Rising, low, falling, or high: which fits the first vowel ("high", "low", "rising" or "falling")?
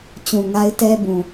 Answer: low